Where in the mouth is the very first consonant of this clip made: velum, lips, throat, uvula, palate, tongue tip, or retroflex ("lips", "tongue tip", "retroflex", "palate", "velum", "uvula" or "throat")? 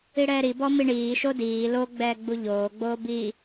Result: retroflex